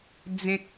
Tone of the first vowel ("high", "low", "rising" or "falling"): high